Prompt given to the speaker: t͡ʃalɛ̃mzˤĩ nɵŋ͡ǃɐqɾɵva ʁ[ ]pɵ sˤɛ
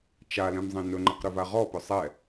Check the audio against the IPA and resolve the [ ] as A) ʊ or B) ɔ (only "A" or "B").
B